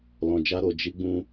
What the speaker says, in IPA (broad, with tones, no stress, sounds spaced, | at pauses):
l ɔ̃˧ d͡ʒ a˦ ɾ o˧ d͡ʒ i˦ ɡ͡b ũ˦